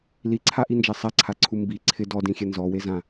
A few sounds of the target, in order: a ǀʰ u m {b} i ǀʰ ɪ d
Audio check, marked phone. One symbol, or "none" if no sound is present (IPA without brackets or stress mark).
b